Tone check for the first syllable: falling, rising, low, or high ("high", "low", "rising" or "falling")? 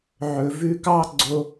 low